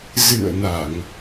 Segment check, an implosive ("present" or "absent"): absent